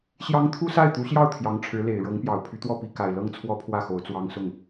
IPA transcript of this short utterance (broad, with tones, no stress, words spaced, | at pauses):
ɕjɑ˥ŋ t̪ʰu˥sa˥˩ɪ̯t̪u˧˥ɕjɑ˥˩ʊ̯ t̪ʰjɑ˧˥ŋʈ͡ʂʰɻ̩˧˥le˨˩ɪ̯ ɻɤ˧˥ŋpjɑ˨˩ʊ̯ pʰy˧˥t̪wɔ˥˩pi˧˥ ka˨˩ɪ̯lɤ˥˩ŋ t͡sʰwɔ˥pʰwä˥˩ xo˧˥ʊ̯t͡swɑ˥ŋsʊ˥˩ŋ